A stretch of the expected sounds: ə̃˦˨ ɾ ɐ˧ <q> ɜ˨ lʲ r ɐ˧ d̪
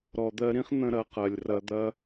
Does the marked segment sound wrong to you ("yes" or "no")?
no